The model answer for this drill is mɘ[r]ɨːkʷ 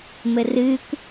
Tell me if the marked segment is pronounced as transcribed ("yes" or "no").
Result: yes